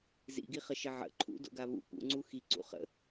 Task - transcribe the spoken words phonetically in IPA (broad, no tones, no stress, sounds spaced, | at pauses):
z ḭ ɡ i χ ə ʃ ɘ ʕ ə̰ ǃʰ ṵ d o̰ ɡ a β ṵ p ṵ ŋ͡ǀ u x i ǀ ṵ χ ə̰